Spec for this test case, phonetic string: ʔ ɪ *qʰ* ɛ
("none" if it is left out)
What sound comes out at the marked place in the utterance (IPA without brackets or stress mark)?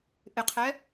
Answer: qʰ